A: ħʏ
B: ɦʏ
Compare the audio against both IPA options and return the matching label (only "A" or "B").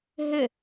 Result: B